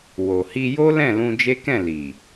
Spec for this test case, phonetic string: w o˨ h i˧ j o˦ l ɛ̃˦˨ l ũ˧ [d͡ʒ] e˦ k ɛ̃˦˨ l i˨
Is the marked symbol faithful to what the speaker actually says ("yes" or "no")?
yes